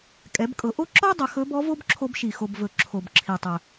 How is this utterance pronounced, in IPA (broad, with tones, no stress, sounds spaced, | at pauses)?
kʼ ɛ˩˧ b kʼ ɤ˩˧ ʔ o˥ ǁ ɔ˥ dˤ ɵ˩˧ x ɵ˧˥ b ɔ˧˥ v o˥ b ǁʰ o˧ b ʃ i˩ x o˩ b v ɵ˩ ǁʰ o˩ b ǁʰ i˩ tˤ ɵ˩